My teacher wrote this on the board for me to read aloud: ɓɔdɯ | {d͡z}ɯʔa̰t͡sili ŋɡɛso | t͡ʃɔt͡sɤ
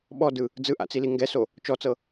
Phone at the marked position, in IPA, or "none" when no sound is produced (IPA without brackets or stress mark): d͡z